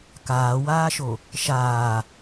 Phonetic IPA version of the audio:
kaːwaːʃo | ʃaː

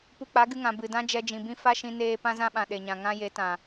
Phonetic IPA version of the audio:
pu˧k͡pa˨˦ɡɨ˧ŋã˨ bɨ˨dã˦ d͡ʒɛ˧d͡ʒĩ˨bĩ˦ fa˦ʃĩ˧neː˧ pã˦zã˦ɓã˨ ɗe˨ɲã˨ ŋã˦ je˨˦tã˨

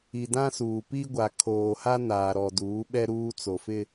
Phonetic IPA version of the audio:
i˨dã˦suː˨ pi˦ ɡʷa˨kʰoː˨ha˦ naː˨ɾɔ˨duː˨˦ ɓɛ˦ɾuː˦ t͡so˨fɪ˦

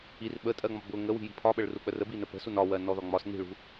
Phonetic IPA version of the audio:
ir ɓətʼɜŋ͡mɒ bʊ ŋəwi̤ji̤ pʰɒɓəɭruk͡pə rəbinə pə̤sun ɒwɜnɔðɒ ŋ͡mɒs ni̤ɭṳ

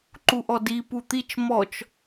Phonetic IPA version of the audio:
ǃuʔɔdi put̪it͡ʃ mɔt͡ʃ

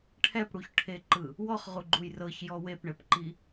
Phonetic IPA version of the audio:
ʈʰɛpɽuçʈʰeǃɯ | wɔχʁuɡ͡ǃuj rɤçjɔ wepɳɛpǃi

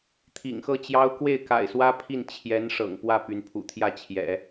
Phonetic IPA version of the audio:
t̪ʰḭ˨˩ŋxɤ˥˩t͡ɕjɑ˥ʊ̯ kwe˥˩ɪ̯ka̰˨˩ɪ̯swä˥ pʰi˥˩n t͡ɕʰjɛ˧˥n ʂɤ̰˨˩ŋpwä˥˩ py˧˥npʰṵ˨˩t̪ʰjä˥˩t͡ɕʰjɛ̰˨˩˦

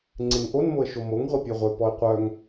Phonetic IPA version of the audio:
ŋ͡ǀeŋʔon moə̯ʃomoŋ ʁʷepʲœʁʷœ pɔɪ̯qʷœŋ

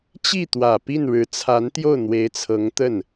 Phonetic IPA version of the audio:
t͡ɕi˥˩t̪wä˨˩ pi˥˩nɻɻ̩˧˥t͡sʰa˧˥n t̪jo˥˩ʊ̯n̪we˧˥ɪ̯t͡sʰɤ˧˥ŋt̪ə˥˩n

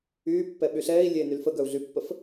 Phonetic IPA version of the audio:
yːpːɛ ɓyɬɛːi̯ lʲeːnylfəɡœu̯ ɮypːəf

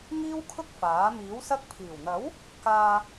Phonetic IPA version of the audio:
ŋiː˥wkʰʊ˥k̚ faː˨˥ miː˨˥wsɐ˥k̚ pʰiː˨˩wn̪ɐ˨˥w | kaː˨

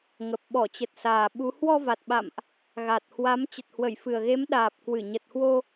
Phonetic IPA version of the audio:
ŋə˨˩p̚ ɓɔ˧˩t͡ɕə˨˩t̚saː˨˩ ɓu˨˦ hwɔ˧ va˨˩t̚ɓa̰˧˨mʔ | ɣa˨˩t̚hwa˨˦m t͡ɕə˨˩t̚hwə˧˩jfɨ˨˩ə̯ɣe˨˦m ɗaː˨˩p̚kwɨ˧˩ ɲə˨˩t̚hwo˧

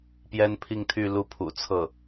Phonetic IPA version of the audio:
pjɛ˥npʰi˥˧ŋt̪ʰy˥˧ lu˥˩pʰṵ˨˩ t͡sʰɤ˥˩

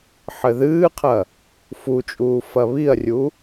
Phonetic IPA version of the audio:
ħɘðɨːqʰɐ | fut͡ʃʼuː fɐβiɐ̯rʲu

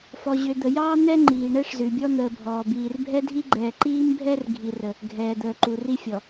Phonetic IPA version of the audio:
fɔ˨ʑø˨ d̪ə˨jɑː˦ n̪ɛ˦ ŋ͡ǃiː˨ɳɛ˦ʂzʉ˨bʲɔ˦ n̪əː˨bʱɔː˨biː˨r bʱɛ˦dʱi˦ɡ͡ǃɛː˨ ǃiː˦mbʱɛ˦r ɡʱi˦rə˦ | ɡʱɛː˨d̪əː˨ǃu˨ ri˦fʲɔ˨

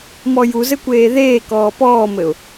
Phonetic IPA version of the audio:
mɔjuzɘkʷeː ðeː kɔːpɔːmɘʊ̯

